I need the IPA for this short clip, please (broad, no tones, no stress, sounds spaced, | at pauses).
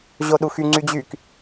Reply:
ʑ o ɗ u x y ŋ͡ǀ y d͡ʑ y k